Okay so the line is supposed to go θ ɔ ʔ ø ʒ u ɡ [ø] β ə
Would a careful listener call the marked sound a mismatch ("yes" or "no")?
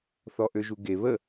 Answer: yes